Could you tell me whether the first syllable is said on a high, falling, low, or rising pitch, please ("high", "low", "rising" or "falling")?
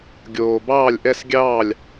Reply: low